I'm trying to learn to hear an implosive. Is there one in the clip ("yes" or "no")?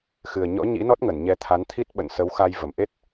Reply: yes